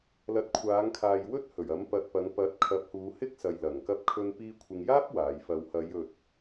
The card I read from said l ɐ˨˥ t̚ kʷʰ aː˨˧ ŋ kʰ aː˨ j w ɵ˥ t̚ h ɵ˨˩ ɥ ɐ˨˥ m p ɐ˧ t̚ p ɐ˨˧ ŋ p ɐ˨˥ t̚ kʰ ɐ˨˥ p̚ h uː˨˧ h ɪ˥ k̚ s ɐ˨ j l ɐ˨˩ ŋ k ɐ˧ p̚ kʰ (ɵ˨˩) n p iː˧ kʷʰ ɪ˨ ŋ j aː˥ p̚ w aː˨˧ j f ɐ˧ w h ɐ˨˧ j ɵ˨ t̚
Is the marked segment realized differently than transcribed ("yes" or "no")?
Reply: yes